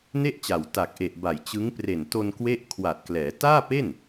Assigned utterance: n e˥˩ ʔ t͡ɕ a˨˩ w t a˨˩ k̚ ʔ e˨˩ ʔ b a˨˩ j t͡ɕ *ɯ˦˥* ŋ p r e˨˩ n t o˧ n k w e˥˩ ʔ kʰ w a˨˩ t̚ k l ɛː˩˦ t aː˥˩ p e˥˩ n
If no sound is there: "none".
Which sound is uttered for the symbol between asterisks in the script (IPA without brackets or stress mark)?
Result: ɯ˦˥